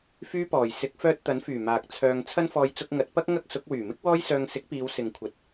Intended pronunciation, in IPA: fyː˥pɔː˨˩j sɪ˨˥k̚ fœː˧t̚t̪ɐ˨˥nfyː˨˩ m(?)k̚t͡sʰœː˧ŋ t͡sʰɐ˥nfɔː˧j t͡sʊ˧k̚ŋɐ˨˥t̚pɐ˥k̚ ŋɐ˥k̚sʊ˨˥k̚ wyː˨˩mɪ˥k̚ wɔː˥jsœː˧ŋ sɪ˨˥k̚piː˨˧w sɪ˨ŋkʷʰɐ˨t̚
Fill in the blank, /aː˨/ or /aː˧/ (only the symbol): aː˨